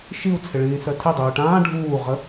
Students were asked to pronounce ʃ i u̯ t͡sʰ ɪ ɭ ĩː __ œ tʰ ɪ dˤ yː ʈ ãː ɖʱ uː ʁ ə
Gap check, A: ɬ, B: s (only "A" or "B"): B